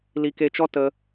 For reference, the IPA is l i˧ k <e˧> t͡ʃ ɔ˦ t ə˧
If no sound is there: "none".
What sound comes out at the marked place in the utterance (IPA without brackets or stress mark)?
e˧